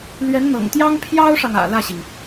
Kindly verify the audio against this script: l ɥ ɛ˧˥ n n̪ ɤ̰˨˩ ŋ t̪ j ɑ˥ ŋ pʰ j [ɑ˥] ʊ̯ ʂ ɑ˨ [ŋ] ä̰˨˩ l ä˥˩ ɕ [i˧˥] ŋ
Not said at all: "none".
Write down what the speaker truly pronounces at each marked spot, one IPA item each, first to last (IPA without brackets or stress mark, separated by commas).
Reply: ɑ˥, ŋ, i˩